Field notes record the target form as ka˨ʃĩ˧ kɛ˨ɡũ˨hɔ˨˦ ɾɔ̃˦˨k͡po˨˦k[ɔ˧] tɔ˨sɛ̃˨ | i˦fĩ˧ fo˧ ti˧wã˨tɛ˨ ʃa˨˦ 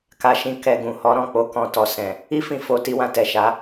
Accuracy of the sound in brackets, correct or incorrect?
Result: incorrect